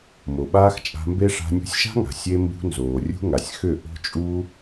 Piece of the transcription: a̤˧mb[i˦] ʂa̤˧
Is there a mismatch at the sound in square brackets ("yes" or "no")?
yes